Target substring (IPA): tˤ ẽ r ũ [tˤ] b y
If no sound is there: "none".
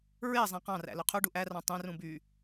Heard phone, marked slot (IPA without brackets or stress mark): none